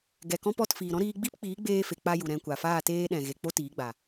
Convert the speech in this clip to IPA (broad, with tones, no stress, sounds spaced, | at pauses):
ɡ ɛ˨ k ɔ̃˦ p ɔ˧ t f iː˨ ɾ ɔ̃˦ ɾ iː˧ ɡ͡b i˦ p k͡p iː˨˦ ɡ͡b eː˧ f e˨ k͡p a˧ j u˨ ɾ ɛ̃˧ kʷ a˨ f aː˦˨ t eː˦ ɗ ɛ̃˨ ɣ e˨ k͡p o˦ t iː˨˦ ɡ͡b a˨